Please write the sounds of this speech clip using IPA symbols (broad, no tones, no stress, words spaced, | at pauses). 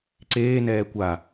ǀeːnɛː kʷa